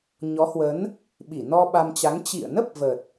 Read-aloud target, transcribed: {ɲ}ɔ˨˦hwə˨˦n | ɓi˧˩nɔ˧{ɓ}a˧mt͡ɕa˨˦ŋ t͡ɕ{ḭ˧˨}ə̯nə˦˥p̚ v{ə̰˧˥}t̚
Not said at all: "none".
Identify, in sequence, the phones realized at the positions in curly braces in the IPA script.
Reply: ɲ, ɓ, ḭ˧˨, ə˨˩

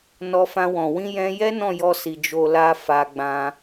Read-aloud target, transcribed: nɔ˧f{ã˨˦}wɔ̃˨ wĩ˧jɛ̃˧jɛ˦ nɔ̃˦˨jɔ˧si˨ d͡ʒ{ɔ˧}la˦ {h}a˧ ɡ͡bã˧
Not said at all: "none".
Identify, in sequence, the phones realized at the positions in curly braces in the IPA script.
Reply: ã˧, o˧, f

